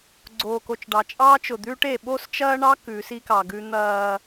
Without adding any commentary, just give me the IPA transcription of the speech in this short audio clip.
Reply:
ɡ͡ǀ oː˨ k o˨ t͡ʃ ɖ ɑ˨ t͡ʃʼ ɑː˦ t͡ʃ ʊ˨ d̪ ʉː˦ ʈ e˨ ɓ o˦ s t͡ʃ ɐː˦ ɳ ɑ˦ k ʉ˨˦ s i˦ k ɑ˨ ɡ ʉ˦ n̪ ɐː˦

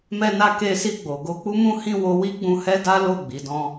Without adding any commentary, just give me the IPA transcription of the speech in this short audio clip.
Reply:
m ɛ˧ n a˧ k e˧ s i˧ ɡ͡b o˨ ɡ o˧ k͡p u˦ m ũ˦ h ĩ˦˨ w o˧ w i˦ ɡ͡b ũ˧ h ɛ˦ d a˦ l o˦˨ ɡ͡b i˨˦ d ɔ̃˦

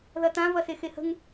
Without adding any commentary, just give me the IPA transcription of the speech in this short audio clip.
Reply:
ð ɐ t ã v ɐ s e x e h ə̤ ŋ

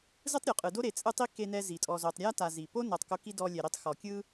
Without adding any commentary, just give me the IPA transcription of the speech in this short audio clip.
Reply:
z ɯ˥ tˤ ɾʲ u˩ qʼ ɯ˨ d o˥ ɾ e˨ t͡sʼ ɯ˦ tˤ i˥ k e˦ n ɛ˦ z i˩ tʼ ɔ˨ z o˨ tˤ ɾʲ a˥ t a˨ z i˩ p o˥ n ɤ˨ tˤ k o˦ k i˥ d ɔ˦ lʲ ɛ˨ ɾ i˦ tˤ x ɔ˩ kʲ ɯ˦

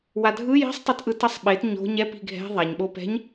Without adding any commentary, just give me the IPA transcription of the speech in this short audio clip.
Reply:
w a dʱ ɯ j i̤ sˤ tˤ ɛ t ʔ ɯ t ʌ sˤ ɓ e t ɲ o̤ ɲ ɛ p i̤ ɡʱ ɛ̤ ðˤ a ɲ ɓ o p ɛ̤ ɲ

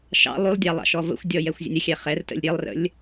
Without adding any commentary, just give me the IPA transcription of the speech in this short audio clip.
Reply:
ʃ ɑ̰ lˠ u lˠ dʲ ɑ lˠ ɑ̰ ʃ ɔ v ə̰ xʷ dʲ ɔ j ɛ xʷ zʲ ə̰ nʲ ə xʲ ɛ χ ɛ r t ə̰ lʲ ɾʲ e lˠ r ə̰ lʲ

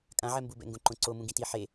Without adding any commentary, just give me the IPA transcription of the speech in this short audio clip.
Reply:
kʼ ã ʕ ɛ m b u b ɛ̰ ŋ ɡ õ ǃ õ ǀ o m ũ ɡ ĩ t i ħ e

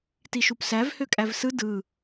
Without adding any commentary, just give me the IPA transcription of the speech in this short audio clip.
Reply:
t i ʃ u p s æ v h ø kʼ æ v s ɯ d ɯ

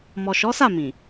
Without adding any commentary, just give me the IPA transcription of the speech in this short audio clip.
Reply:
m ɔ˨ ʃ ɔ˨˦ s a˦˨ m ĩ˨

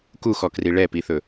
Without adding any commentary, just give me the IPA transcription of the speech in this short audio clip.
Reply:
k u x ɔ k r i ɭ ɛ p i θ ɵ

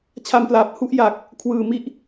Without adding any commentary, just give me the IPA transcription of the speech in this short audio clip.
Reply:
t͡ɕʰ a˧ m p l aː˨˩ p̚ h u˦˥ ʔ j aː˨˩ k̚ | kʰ w ɯː˨˩ m i˥˩ ʔ

